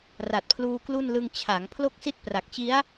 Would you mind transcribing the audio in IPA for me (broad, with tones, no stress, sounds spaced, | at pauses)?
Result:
r a˨˩ t̚ pʰ l uː˧ k l u˥˩ n l ɯ˧ ŋ t͡ɕʰ a˩˦ ŋ pʰ l o˥˩ k̚ s i˥˩ t̚ p r a˨˩ k̚ t͡ɕ i˦˥ a̯